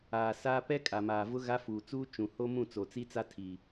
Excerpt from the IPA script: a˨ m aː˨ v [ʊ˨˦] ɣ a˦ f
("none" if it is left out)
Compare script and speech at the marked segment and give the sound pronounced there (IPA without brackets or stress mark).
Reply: ʊ˦